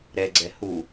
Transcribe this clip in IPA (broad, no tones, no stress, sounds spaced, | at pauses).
ɾ ɛ ɡ͡ǀ ɛ h u